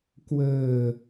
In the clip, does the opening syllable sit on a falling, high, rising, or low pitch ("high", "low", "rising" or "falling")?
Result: low